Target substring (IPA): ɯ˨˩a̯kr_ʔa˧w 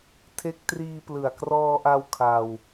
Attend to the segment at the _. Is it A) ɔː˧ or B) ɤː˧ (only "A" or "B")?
A